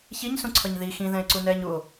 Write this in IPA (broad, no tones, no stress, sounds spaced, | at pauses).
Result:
ç i ɲ s ũ ǀʰ ʌ ɲ ð i x ĩ ð ɛ̃ e̯ ǀ u n ɛː ɲ u o̯